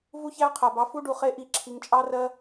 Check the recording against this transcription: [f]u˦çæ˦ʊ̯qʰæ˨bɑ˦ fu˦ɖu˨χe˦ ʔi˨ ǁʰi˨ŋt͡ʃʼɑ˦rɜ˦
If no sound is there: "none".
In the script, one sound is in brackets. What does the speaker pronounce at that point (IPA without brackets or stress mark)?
v